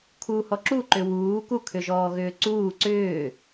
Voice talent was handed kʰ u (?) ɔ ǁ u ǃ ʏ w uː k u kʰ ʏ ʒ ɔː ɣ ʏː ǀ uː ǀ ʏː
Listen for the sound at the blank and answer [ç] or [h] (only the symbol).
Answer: h